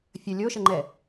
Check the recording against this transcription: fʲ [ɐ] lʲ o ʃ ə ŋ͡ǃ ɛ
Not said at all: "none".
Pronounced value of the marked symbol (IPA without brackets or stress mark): ə